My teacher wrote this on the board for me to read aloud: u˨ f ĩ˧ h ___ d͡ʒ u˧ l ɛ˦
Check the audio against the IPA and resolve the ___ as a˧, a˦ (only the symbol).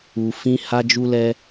a˧